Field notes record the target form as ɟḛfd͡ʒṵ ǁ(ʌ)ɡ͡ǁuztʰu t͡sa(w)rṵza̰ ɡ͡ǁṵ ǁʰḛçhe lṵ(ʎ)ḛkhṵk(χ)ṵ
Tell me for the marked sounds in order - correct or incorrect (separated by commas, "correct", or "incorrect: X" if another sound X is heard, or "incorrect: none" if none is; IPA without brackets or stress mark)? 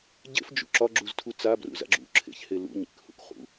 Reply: incorrect: ɒ, incorrect: b, incorrect: ɲ, correct